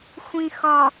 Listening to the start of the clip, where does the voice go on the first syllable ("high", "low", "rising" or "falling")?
low